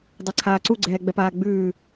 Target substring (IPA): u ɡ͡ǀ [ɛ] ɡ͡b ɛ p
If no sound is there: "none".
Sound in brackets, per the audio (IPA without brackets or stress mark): ɛː